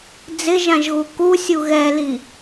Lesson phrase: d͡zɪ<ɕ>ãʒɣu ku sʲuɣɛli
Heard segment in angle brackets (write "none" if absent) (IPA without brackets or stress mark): ʒ